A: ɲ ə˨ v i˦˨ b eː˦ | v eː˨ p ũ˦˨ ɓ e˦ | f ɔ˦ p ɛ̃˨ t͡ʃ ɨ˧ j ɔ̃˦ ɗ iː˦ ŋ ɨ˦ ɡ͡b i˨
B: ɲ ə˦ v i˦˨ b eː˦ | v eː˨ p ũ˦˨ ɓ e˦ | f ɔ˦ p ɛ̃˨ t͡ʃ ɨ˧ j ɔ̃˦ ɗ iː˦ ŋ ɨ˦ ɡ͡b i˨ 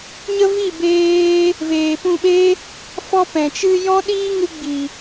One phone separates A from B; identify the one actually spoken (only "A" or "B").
B